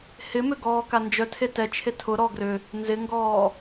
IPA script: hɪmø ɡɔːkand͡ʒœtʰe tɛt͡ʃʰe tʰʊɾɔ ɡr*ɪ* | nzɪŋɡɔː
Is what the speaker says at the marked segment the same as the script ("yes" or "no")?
no